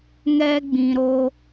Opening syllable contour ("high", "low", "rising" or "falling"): high